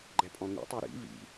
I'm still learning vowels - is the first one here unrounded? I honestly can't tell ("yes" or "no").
yes